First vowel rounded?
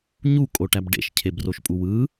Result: yes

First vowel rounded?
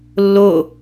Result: yes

